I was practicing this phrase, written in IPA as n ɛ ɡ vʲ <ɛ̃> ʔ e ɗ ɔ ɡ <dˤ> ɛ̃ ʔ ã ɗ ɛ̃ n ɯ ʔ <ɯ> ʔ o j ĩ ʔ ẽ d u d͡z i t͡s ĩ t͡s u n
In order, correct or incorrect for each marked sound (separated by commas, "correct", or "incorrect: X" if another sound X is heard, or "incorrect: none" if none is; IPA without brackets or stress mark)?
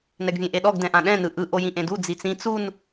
incorrect: ẽ, incorrect: d, correct